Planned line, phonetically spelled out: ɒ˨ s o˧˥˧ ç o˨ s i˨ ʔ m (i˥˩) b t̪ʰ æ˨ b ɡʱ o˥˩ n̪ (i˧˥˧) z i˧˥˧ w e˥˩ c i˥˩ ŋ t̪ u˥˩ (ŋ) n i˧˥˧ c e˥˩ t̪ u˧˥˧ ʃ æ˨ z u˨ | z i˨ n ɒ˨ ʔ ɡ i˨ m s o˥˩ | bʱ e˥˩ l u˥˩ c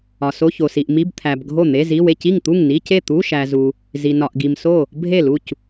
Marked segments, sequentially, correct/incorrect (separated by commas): incorrect, incorrect, correct